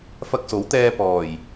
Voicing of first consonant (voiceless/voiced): voiceless